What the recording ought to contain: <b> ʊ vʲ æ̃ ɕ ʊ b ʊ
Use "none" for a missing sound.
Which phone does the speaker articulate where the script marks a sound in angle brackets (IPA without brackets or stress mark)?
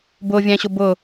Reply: b